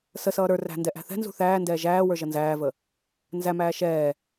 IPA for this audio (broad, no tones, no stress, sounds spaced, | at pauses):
s ə s ʌː ɾ ə˞ r æ̤ n d ɛ ʔ æ̤ θ ɛ̤ n z ṳ θ æː n d ɛː ʒ æː w ə˞ ʒ ʌ n z æː v ə | n z æ m æː ʃ ɛː